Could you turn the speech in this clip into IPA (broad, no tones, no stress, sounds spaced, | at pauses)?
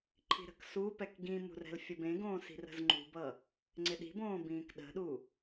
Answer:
ǃʰ i̤ ɾ ə̤ k s u p ɛ k ɡ ĩ m ṳ r ɛ̤ l fʲ ə b ẽ ɡ õː s i̤ r ə̤ z ŋ͡ǃ ṳ b ʌ | ŋ͡ǀ ɪ ɗ i̤ b õː b ĩː k ɗ ə̤ ɗ u